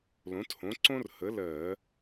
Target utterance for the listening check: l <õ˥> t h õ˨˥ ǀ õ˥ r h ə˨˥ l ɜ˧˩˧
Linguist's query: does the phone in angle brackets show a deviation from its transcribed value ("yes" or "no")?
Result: yes